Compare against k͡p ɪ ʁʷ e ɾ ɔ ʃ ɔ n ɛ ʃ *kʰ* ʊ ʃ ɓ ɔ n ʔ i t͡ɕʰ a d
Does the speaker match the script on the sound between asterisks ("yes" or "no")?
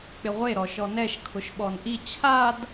yes